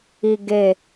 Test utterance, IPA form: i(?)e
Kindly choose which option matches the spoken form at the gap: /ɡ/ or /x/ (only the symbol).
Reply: ɡ